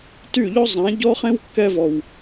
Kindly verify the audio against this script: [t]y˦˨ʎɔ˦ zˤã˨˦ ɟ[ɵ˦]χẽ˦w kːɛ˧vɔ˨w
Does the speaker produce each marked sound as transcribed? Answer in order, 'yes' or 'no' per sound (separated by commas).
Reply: yes, no